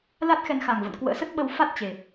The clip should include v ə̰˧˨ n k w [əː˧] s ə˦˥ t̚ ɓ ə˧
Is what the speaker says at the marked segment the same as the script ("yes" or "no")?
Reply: no